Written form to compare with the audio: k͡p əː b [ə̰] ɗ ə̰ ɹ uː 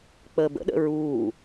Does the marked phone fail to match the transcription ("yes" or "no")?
no